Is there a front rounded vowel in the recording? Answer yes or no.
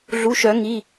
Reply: yes